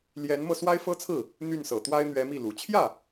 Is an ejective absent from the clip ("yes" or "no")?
yes